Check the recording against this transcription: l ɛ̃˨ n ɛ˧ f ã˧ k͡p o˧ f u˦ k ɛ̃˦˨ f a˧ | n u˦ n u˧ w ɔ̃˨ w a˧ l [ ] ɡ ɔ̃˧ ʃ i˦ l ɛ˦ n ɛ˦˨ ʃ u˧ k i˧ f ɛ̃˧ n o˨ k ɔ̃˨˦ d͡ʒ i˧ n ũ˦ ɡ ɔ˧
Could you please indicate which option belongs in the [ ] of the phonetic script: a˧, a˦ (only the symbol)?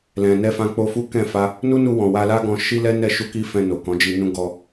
a˦